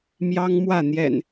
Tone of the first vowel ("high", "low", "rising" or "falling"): high